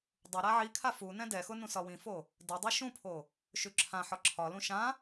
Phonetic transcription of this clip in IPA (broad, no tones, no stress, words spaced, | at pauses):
dˤʊ ɾaʕikʰa fu nɛ̃dɛxʊ nũsɒwĩfo | dɛdˤɛ ʃũpʰo | ʃʉǁʰãħɒ ǁʰɒlũ ʃã